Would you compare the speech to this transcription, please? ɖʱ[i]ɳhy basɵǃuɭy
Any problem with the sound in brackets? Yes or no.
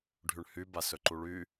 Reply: yes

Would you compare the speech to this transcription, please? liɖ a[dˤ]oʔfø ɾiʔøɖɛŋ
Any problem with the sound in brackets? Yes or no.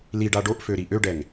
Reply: yes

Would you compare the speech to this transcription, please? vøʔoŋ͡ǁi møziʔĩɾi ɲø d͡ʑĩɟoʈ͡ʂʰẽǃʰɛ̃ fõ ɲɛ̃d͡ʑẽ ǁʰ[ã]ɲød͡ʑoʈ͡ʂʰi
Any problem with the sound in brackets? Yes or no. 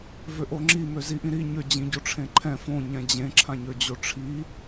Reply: no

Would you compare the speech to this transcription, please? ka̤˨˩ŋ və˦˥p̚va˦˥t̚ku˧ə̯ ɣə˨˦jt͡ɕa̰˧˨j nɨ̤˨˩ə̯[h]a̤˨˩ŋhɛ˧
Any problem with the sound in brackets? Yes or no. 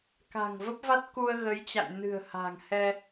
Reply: no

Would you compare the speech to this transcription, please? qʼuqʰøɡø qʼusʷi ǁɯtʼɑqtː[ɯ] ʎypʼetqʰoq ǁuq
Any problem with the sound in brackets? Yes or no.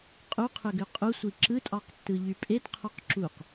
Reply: no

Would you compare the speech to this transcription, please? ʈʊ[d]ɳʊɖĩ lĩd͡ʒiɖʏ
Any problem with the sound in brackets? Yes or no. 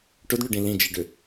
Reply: no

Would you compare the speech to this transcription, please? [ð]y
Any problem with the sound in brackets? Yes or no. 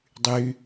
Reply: yes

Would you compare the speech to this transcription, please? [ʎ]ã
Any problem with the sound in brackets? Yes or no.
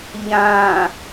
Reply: no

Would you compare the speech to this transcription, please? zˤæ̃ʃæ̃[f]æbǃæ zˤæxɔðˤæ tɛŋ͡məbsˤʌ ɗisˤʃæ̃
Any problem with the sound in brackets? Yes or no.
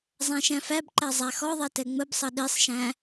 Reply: no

